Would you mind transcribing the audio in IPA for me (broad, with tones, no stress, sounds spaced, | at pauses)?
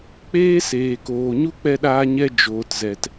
k͡p eː˦ s eː˨ k oː˨ ɲ u˦ k͡p ɛ˧ ɗ aː˧ ɲ ɛ˧ d͡ʒ oː˨ t z ɛ˨ t